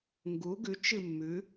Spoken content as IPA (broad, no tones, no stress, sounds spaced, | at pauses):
ŋ ɡ u ɡ ʉ t͡ʃ ɨ mː ʉ